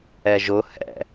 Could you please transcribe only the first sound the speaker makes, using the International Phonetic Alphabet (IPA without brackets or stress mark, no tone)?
ɛ